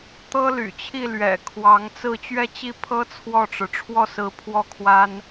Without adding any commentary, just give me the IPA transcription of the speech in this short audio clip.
t̪ ɤ˥ l y̰˨˩ t͡ɕʰ i˥˩ l ɥ ɛ̰˨˩ kʰ w ɑ˧˥ ŋ t͡s ɹ̩˥˧ t͡ɕ ɥ ɛ˥˧ t͡ɕ i˥˩ pʰ ɤ˥ t͡sʰ w ɔ˥˩ ʈ͡ʂ ɻ̩˩ ʈ͡ʂʰ w ɔ˥˩ s ɹ̩˧˥ pʰ w ɔ˥˩ kʰ w a˥ n

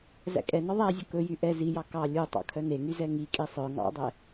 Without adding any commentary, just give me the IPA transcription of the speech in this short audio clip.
z æ̰ kʼ ɛ n ɔ ðˤ æ zʲ ɵ k ɵ j y ʔ ɛ z i j ɑ k ɑ lʲ u tˤ ɑ̰ kʰ œ n e ŋ y z ɛ ŋ i kʼ i sˤ œ ŋ ɑ̰ dˤ ɛ

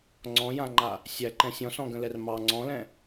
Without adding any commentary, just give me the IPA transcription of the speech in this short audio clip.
ŋ͡ǀ ɔ̃ j ã ŋ͡ǃ a | sʲ æ ǃ ɛ̃ sʲ ɔ̃ s ɔ̃ ɡ ə̃ l ɛ r m ɑ ŋ͡ǀ ɔ̃ l ɛ̃

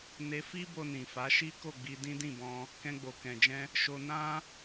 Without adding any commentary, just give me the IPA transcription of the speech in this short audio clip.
n e˧ f i˦ b o˧ n ĩ˨ f a˨˦ ʃ i˦ k o˦˨ ɡ͡b i˧ d ĩ˦ d ĩ˦˨ b ɔ̃˧ | k ɛ̃˧ ɡ͡b o˨ k ɛ̃˨ d͡ʒ ɛ̃˧ | ʃ o˧ n ã˦

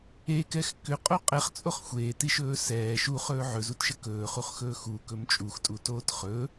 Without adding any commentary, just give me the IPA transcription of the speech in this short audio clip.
e k ɛ x k ʏ qʼ o qʼ ɛ χ t͡sʼ o χ xʷ eː t i ʃ ɵː s ɛː ʃ u χ ɵː ʕ ɵ z u t ʃ ə k ɵː χ u χ x ɵː x u k ɵ m t͡ʃʼ u x tʼ u t oː t χ ɵ

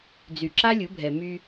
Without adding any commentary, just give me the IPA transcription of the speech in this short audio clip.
d͡z y˨ ǁ a˦ lʲ u˨˦ bʱ ɛ˨ m y˦

